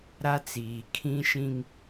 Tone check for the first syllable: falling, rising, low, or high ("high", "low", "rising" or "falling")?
high